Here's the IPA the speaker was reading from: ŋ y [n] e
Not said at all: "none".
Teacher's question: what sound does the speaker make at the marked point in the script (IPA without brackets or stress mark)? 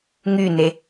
n